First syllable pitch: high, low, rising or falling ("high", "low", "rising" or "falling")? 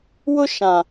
high